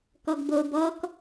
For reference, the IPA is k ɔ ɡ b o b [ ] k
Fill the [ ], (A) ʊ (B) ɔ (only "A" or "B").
B